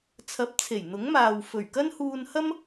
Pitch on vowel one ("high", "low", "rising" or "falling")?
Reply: rising